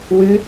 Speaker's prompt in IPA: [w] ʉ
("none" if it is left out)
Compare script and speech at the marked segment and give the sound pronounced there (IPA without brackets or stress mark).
w